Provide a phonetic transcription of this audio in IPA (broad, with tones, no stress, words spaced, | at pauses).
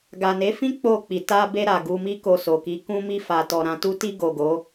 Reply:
ɡa˨ne˨˦fĩ˦ k͡po˦˨k͡pi˨ ta˧be˧ ɾa˨ɡu˧mi˦ko˧ so˨ki˨˦ kũ˧ mi˧fa˨ tɔ˨ɾã˧tu˦ ti˧ ɡo˨ɡo˨˦